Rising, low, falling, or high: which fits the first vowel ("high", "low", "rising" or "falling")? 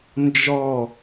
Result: falling